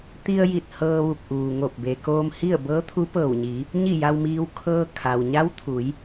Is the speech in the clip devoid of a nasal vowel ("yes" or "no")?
yes